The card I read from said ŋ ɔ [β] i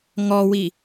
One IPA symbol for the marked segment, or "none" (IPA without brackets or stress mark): w